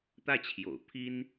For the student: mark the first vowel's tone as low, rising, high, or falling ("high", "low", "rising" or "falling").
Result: falling